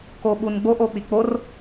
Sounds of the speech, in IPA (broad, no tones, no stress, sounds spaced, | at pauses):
k o ɓ u n ɡ͡b o ʔ o k͡p i k͡p o r